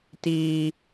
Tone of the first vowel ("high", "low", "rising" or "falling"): high